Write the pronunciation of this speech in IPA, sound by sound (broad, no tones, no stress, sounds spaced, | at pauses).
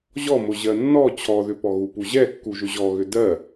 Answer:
ʑ ɔ m ʊ ʑ ɜ nː ɔ t͡ɕʰ ɔ ð ʏ p ɔ ɣ u p u ʑ ɛ kː u ʒ ʏ ʑ ɔ ɣ ʏ d ɜ